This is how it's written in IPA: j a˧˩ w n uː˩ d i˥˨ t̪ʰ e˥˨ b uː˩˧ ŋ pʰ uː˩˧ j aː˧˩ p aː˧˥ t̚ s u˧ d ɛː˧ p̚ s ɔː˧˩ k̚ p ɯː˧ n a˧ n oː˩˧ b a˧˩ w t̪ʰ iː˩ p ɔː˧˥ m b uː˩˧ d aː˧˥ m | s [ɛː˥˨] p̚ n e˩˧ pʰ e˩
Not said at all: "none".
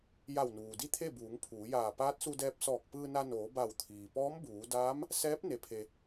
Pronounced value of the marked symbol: ɛː˧˥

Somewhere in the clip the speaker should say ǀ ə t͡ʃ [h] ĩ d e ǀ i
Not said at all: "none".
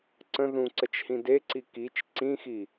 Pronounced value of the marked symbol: h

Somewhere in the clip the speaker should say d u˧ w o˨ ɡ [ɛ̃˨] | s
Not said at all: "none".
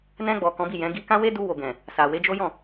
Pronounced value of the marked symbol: ɛ̃˨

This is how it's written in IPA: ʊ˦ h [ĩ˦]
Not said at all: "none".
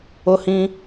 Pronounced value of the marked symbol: ĩ˦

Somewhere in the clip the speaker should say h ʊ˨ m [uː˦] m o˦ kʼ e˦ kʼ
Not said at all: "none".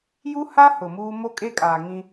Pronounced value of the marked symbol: uː˦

